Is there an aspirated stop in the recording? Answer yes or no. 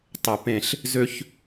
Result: no